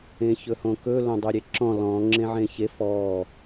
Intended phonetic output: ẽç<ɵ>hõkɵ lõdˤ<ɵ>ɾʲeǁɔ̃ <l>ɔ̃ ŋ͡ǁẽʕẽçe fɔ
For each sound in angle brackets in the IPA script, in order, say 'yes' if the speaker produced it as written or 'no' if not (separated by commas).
yes, no, yes